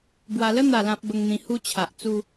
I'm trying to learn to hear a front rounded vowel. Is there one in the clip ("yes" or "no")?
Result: no